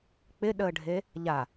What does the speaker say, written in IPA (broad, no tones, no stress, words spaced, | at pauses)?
k͡pɪɗəːɖʱe | ʎa